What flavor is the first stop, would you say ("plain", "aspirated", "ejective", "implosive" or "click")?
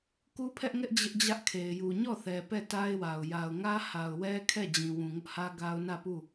plain